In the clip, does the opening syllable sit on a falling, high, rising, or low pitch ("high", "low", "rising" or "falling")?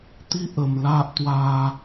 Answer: high